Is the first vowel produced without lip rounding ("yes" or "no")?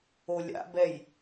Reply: no